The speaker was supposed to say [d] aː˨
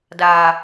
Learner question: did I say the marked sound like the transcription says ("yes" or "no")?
yes